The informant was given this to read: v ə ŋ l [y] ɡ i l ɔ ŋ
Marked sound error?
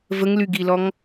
no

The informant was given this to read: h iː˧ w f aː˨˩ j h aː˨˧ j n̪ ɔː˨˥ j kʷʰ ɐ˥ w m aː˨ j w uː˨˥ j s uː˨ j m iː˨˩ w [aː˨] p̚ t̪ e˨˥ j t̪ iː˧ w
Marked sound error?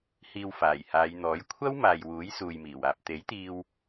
no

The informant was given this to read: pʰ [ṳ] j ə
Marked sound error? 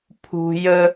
no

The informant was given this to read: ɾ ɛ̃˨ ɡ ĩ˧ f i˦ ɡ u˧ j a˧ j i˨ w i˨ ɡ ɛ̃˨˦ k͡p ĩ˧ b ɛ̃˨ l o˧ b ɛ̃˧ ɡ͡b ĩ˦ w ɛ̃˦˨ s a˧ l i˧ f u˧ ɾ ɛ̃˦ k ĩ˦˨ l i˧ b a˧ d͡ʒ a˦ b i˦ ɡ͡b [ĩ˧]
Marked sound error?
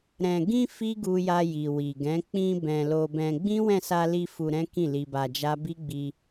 yes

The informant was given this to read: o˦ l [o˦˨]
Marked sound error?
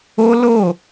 no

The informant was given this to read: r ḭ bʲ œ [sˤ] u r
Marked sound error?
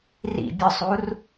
no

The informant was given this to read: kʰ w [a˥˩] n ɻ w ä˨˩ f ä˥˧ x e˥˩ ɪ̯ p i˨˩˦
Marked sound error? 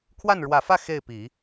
no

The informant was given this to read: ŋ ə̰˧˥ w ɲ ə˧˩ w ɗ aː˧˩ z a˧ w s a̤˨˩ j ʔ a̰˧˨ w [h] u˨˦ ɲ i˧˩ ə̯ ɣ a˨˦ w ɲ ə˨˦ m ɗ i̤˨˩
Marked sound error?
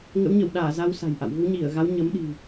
yes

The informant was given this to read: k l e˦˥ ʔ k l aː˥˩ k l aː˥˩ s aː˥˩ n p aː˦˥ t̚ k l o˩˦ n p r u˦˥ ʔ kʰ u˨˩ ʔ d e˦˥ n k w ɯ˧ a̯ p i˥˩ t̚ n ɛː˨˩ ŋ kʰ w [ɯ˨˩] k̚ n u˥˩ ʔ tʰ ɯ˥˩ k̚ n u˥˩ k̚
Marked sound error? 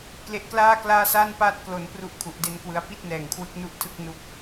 yes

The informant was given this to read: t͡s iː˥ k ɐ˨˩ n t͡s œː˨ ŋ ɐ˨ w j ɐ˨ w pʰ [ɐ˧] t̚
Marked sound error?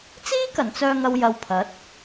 yes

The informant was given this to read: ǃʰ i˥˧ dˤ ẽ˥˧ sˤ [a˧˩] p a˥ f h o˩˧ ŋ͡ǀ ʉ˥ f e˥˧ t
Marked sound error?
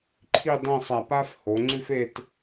no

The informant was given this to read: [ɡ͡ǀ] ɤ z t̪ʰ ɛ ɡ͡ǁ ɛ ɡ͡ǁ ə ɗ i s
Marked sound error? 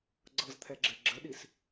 no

